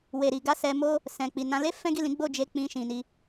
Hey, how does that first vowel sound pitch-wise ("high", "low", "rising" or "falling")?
low